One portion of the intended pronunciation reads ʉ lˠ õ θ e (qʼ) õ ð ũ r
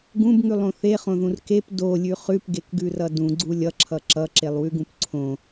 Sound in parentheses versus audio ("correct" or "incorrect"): incorrect